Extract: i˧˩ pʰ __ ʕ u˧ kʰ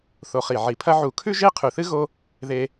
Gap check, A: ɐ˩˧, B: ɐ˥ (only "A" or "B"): B